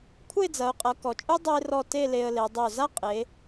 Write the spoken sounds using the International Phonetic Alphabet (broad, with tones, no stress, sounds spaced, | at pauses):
kʷʰ ɘ˥˧ ɪ̯ d͡z ɐ˩˧ ʊ̯ qʼ ɐ˩˧ k ɔ˩˧ t͡ʃʼ u˥ dˤ o˥ ɪ̯ r ɔ˥˧ t e˥˧ l e˧ ə̯ l e˩˧ dˤ o˧˩ z a˥ qʼ e˩˧